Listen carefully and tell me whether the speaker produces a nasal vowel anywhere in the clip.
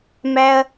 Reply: no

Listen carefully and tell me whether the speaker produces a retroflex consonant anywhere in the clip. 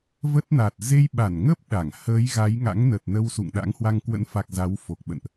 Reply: no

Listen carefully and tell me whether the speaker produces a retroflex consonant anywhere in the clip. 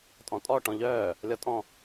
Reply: yes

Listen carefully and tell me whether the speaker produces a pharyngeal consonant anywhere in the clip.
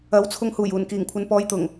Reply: no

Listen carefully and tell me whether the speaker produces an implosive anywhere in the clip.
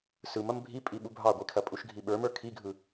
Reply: yes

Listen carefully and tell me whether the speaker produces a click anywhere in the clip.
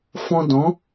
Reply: no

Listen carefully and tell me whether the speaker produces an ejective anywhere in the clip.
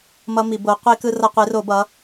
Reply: no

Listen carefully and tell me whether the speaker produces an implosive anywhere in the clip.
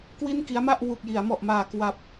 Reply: no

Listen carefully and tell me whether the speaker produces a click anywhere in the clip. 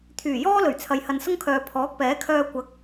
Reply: no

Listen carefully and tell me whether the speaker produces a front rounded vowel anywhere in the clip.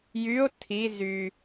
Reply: yes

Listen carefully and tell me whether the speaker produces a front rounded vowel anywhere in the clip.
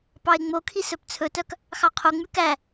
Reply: yes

